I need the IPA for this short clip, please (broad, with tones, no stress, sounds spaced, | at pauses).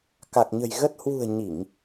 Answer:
k a˨˩ k̚ ɲ ə̤˨˩ j ɣ ə˦˥ t̚ h w ṳ˨˩ ə̯ ɲ i˧˩˨ ŋ